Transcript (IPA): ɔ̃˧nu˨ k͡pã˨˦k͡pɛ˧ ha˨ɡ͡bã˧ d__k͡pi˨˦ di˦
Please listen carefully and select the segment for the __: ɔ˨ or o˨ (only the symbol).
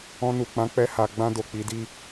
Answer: o˨